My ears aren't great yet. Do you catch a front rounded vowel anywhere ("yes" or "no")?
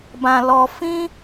no